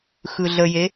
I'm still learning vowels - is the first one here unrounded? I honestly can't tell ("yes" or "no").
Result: yes